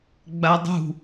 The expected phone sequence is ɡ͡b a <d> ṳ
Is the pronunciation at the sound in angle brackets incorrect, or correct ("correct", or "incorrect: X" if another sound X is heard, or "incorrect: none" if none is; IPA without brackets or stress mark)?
incorrect: dˤ